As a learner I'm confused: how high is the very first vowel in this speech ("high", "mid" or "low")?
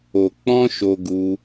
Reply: mid